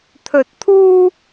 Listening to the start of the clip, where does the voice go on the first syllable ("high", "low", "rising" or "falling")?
low